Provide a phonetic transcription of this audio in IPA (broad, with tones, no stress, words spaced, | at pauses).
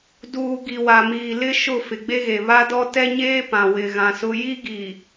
duː˨ ɡi˨wa˨miː˨lɪ˦ ʃʊ˦˨ fɪ˨ɡ͡be˦ɣe˨ βa˦dɔ˦ tɛ˦ɲeː˦ pã˨wɪ˨ɣã˨sʊ˦ ji˦ɡi˨